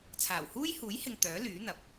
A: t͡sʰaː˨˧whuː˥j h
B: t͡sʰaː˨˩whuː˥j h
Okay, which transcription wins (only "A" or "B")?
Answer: B